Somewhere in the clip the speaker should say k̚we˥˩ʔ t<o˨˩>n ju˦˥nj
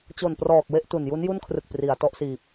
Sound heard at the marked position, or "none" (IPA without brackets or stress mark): u˨˩